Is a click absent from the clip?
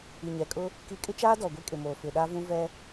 yes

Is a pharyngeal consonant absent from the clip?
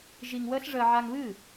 no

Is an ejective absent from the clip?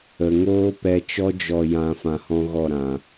yes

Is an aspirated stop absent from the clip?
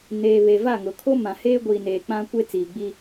no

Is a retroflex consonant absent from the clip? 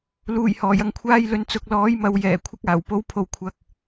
yes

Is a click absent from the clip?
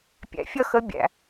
yes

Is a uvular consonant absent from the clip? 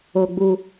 yes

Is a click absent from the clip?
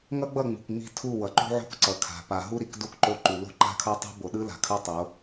no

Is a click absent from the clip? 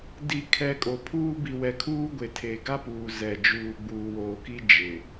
yes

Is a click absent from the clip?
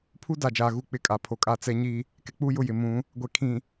yes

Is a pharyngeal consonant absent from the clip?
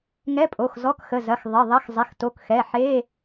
no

